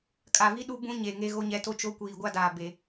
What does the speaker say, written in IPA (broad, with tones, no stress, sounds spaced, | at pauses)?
kʼ a˨ v i˦ ɗ u˦ b ũ˦ ɲ e˨ ŋ e˦ ɣ o˦ ɲ ɛ˨˦ t o˦ t͡ʃ o˦ kʷ iː˨ ɡʷ a˦ d aː˨ b e˦